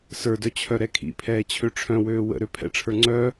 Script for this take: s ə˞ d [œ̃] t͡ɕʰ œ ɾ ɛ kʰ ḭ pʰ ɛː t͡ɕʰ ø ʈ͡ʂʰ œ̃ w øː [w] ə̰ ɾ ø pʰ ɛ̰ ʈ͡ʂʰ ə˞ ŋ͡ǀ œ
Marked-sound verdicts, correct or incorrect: incorrect: œ, correct

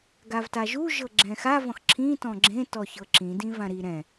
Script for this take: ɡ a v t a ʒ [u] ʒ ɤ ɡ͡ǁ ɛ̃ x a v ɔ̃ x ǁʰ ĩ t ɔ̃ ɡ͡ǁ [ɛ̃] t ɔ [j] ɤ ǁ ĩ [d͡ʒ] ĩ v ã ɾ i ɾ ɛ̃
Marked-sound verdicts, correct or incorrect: correct, incorrect: ẽ, incorrect: ç, incorrect: d

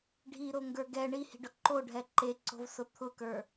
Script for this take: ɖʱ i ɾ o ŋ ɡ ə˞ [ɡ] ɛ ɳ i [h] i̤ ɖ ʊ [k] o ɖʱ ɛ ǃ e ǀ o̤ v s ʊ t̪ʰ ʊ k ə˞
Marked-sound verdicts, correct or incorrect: correct, correct, incorrect: ǃ

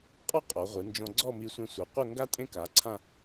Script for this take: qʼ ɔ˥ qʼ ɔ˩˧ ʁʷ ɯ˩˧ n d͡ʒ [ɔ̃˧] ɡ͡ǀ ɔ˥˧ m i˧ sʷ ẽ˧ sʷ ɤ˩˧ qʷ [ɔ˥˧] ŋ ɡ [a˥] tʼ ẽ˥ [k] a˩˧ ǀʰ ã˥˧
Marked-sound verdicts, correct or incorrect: correct, incorrect: ɤ˥˧, correct, correct

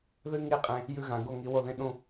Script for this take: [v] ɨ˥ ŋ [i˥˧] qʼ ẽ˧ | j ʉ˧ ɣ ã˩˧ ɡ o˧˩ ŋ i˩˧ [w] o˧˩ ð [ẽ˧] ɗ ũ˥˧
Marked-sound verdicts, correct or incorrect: incorrect: ð, correct, correct, correct

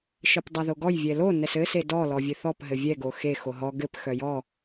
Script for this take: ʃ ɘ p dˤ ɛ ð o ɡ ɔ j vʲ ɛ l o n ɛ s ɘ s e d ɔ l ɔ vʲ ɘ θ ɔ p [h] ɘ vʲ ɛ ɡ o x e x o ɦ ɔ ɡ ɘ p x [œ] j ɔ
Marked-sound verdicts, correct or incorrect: incorrect: ɦ, correct

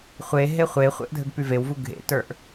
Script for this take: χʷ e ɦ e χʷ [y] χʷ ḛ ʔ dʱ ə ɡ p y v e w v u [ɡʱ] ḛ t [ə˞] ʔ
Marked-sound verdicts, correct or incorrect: incorrect: e, correct, correct

